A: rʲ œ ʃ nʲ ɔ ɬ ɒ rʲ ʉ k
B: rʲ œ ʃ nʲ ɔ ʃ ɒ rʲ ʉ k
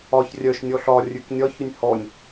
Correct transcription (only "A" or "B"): A